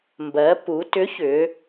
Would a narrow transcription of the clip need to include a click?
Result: no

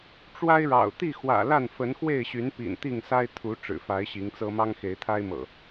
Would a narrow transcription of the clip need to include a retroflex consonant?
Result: yes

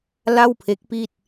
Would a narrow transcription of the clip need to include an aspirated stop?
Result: yes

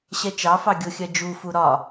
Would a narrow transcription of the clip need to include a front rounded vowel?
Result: no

